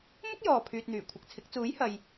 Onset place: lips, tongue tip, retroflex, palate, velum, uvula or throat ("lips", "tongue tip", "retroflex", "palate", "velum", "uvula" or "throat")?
lips